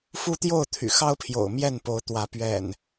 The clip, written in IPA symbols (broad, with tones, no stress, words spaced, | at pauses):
fu˦t̪jo˥˨ʊ̯ t̪ʰy̰˨˩xɑ˦ʊ̯pʰjo̰˨˩ʊ̯ mjɛ˥˨n po˨˦ʊ̯t̪wä˨˦ pɥɛ̰˨˩n